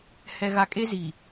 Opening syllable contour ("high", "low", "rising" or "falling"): high